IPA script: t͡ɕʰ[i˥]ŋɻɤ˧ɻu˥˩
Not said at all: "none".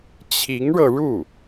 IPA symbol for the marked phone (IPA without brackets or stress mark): i˧˥